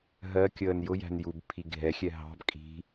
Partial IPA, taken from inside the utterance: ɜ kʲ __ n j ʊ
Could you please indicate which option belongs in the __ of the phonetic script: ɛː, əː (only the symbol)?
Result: əː